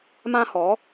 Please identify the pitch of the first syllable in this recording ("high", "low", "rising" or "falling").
high